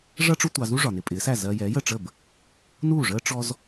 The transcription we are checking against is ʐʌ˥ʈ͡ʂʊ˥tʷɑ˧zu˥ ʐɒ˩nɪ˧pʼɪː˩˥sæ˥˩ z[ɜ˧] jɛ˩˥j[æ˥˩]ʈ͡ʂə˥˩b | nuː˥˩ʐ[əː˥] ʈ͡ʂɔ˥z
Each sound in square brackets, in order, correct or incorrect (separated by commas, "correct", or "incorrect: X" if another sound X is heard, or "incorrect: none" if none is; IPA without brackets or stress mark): correct, incorrect: ə˥˩, correct